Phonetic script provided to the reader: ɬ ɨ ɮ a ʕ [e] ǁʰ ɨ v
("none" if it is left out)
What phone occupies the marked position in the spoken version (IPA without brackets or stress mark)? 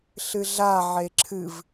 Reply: e